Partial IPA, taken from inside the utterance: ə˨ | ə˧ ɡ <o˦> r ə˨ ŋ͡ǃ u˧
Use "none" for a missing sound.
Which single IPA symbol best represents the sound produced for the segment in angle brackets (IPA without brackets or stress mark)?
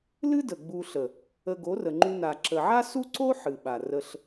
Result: o˨˦